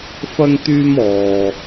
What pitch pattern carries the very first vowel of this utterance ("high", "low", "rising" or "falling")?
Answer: high